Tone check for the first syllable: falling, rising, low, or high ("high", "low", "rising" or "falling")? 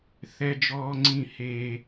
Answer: high